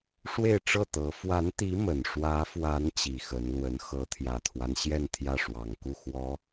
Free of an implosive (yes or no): yes